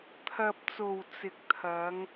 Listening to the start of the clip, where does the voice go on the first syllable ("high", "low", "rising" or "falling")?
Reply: low